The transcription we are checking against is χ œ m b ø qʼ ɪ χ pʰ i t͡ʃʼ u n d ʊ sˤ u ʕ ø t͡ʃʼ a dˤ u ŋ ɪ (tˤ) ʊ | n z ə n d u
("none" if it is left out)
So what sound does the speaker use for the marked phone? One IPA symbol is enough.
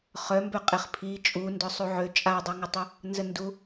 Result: tˤ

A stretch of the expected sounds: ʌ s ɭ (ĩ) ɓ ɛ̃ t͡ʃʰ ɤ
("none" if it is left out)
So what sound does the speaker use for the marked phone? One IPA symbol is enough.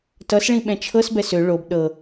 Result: ĩ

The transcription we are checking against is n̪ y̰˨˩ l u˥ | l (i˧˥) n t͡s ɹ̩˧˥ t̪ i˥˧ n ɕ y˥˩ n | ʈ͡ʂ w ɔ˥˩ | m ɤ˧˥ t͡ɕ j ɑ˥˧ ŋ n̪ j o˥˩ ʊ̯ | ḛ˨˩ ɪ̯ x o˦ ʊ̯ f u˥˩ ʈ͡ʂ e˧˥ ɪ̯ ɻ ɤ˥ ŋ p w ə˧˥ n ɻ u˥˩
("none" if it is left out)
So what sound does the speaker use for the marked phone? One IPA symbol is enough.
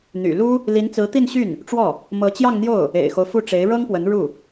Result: i˧˥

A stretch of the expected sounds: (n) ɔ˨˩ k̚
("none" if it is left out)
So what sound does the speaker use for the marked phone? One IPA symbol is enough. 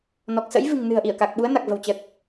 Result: n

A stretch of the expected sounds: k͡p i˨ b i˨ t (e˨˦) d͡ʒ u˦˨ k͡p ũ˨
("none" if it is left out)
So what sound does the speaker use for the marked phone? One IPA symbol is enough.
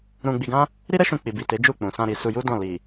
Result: e˨˦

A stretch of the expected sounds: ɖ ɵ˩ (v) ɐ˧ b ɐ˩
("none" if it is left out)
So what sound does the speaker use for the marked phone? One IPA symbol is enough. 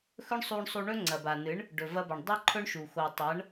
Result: v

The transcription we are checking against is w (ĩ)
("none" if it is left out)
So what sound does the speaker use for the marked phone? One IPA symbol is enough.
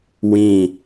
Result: ĩ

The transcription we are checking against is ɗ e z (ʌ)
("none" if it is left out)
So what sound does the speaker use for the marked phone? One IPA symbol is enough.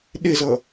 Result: ʌ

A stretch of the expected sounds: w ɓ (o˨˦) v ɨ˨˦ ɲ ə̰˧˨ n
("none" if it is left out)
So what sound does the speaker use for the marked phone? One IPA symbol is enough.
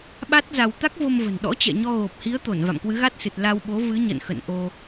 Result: o˨˦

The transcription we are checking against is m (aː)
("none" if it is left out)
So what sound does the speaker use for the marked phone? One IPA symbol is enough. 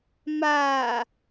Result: aː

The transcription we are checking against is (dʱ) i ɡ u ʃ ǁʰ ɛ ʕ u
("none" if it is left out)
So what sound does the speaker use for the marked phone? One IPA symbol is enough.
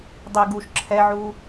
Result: dˤ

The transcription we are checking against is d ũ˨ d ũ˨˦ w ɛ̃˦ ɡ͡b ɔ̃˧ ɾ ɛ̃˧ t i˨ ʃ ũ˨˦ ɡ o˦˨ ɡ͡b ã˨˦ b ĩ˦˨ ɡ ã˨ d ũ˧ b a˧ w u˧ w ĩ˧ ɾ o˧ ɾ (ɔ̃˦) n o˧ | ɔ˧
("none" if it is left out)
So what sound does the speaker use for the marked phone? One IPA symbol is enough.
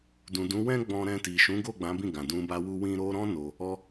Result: ɔ̃˦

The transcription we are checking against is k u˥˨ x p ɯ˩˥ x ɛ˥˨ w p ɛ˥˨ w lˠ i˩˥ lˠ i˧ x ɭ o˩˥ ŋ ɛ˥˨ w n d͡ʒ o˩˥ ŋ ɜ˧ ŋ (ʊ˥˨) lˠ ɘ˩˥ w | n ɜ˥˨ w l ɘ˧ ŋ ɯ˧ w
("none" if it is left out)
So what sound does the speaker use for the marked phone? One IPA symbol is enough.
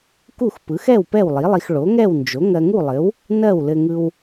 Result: u˥˨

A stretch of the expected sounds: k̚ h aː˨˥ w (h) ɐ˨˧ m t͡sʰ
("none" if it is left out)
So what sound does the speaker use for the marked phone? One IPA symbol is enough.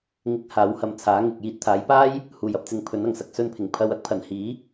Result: h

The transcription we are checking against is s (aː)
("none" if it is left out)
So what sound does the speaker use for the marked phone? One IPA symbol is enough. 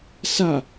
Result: a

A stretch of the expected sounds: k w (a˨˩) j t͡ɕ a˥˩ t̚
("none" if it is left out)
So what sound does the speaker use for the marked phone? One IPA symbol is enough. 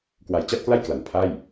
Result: a˨˩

